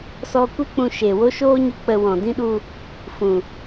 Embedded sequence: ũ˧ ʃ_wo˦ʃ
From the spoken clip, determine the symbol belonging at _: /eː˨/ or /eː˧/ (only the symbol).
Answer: eː˨